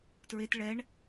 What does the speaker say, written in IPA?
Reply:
t ɹ e t ɭ ɛ ɳ

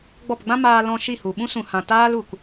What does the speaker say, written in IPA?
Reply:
ɡ͡b ɔ˦˨ p ɡ͡b ã˦ m aː˧ l ɔ̃˧ ʃ i˦˨ h u˨ ɓ ũ˦ s ũ˨ h ã˨ t aː˦ l u˨ k

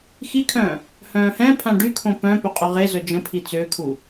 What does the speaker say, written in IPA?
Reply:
x i kʰ œ̃ː | h œ̃ː h ɛ̃ pʰ ã ɖ y kʰ õ p œ̃ p ø qʼ y ʁ e z œ d͡ʒ ə̃ pʰ i t͡s ø kʰ u

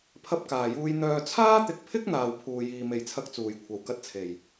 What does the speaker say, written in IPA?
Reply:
pʰ ɐ˧ p̚ k aː˨˩ j uː˧ j n̪ œː˨ t͡sʰ aː˥ t̪ ɪ˨ k̚ pʰ ɪ˥ k̚ n̪ aː˨ w pʰ uː˨ j iː˨ m e˨˩ j t͡sʰ ɐ˧ k̚ t͡s uː˨˩ j kʷʰ ɐ˨˩ w k ɐ˧ t̚ t͡sʰ e˨˩ j

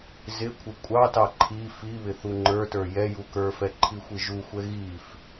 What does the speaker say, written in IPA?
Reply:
z ɪ kʷʰ ɪ kʷʼ ɑ t ɑ ǃʰ i f i β ɪ θ u ŋ͡ǃ ə˞ t ə˞ j ɛ j u k ə˞ f ɛ ǃʰ i xʷ i ʒ u xʷ ɛ ɣ i f

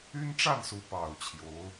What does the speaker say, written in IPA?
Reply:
y˥ n ʈ͡ʂ a˥˩ n s u˧˥ p ɑ˨˩ ʊ̯ t͡ɕʰ j o˧˥ ʊ̯

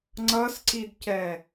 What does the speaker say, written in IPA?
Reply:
ŋ͡ǀ ʌ s ǀ i d c ɛ

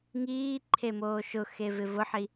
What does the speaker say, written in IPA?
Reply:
ŋ iː ǃʰ e m oː ʃ ʊ x e v ɪ v ʊ ħ i

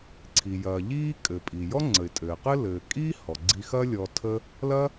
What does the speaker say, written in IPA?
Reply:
ǀʰ i˩ j ɐː˩ ʎ iː˥ kʼ ɘ˩ pʼ i˩ j ɔ˥ ŋ͡ǀ ə˩ ɪ̯ tʼ ɘː˩ q ɘ˥ l ɘː˩ kʼ iː˥ h ɔ˩ ɡ͡ǀ i˧ x ɐ˥ lʲ ɔ˧ tʰ ə˥ | l ɐ˥

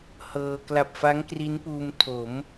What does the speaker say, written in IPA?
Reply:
h ɤː˧ k l a˨˩ p̚ f a˦˥ ŋ k r i˦˥ n p uː˧ m tʰ o˩˦ m

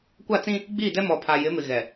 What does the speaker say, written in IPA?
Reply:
kʷ a˦˨ t͡s ĩ˦ | ɡ͡b iː˦˨ d ɛ˦ m ɔ˨ pʰ a˨ j ɪ˨˦ m ɪ˨ ɣ ɛ˨

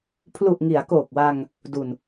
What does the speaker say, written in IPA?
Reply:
pʰ l u˨˩ ʔ ŋ i˩˦ a̯ k oː˨˩ k̚ w a˧ ŋ | d u˨˩ n

